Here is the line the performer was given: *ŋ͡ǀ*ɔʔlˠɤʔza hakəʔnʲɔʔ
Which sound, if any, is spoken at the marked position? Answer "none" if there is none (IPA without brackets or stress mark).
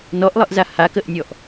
n